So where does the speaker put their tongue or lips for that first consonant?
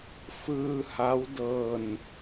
lips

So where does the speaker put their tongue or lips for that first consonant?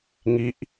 velum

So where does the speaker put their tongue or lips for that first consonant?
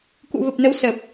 velum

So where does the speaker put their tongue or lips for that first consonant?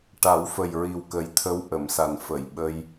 retroflex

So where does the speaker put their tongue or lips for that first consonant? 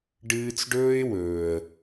retroflex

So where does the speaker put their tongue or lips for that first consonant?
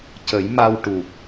palate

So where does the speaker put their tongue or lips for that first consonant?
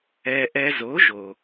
throat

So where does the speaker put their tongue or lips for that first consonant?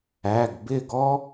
velum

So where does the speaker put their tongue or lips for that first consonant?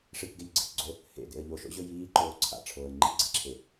retroflex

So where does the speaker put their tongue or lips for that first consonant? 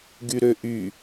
velum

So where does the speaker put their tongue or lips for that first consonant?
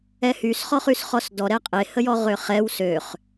throat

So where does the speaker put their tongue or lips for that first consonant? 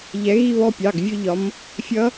palate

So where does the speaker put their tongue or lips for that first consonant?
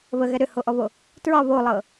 lips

